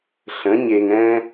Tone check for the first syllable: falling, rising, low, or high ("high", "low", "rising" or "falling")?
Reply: rising